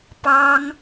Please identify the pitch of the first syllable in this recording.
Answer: high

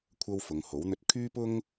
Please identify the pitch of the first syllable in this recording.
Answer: high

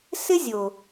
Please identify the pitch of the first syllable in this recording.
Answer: high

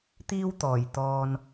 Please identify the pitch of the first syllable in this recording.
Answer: high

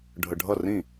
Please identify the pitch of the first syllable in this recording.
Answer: low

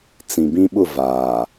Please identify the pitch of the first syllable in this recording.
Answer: low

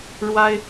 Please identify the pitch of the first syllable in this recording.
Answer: high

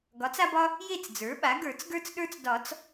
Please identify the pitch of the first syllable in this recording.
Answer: rising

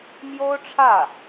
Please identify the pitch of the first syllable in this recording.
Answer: high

